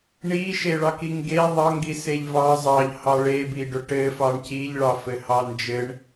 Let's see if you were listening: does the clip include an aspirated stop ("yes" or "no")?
no